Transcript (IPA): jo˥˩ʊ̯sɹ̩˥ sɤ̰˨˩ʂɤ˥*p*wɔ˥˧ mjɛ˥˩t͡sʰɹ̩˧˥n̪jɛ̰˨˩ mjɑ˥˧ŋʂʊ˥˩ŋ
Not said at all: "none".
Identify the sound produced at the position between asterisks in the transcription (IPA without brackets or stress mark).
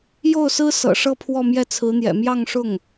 pʰ